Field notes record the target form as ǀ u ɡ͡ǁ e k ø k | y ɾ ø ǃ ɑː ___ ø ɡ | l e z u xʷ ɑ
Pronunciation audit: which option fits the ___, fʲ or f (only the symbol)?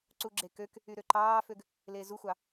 f